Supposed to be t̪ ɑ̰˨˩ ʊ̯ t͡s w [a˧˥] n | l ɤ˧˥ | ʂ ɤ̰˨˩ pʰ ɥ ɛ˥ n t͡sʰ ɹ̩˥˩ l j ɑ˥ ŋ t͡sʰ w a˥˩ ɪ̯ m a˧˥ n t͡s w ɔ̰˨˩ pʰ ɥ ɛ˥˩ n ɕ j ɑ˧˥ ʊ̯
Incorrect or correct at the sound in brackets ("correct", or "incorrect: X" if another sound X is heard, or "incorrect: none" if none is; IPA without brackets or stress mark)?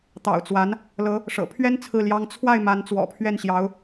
correct